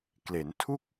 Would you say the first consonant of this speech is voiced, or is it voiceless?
voiceless